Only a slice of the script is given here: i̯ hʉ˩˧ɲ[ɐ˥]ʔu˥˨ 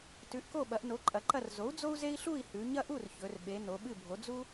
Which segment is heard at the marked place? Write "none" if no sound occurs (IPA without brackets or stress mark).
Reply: ɐ˥